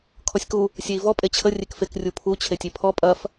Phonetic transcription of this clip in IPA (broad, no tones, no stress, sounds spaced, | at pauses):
kʰ ɔ sʲ k u | sʲ e i̯ v ɔ pʼ e t͡ɕʰ ə rʲ e k f e k rʲ u pʰ u t͡ɕʰ e tʲ e pʰ ɔ pʼ ɐ f